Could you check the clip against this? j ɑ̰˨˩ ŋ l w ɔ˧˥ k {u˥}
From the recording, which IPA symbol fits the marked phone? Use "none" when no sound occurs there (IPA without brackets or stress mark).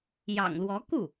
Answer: u˥˩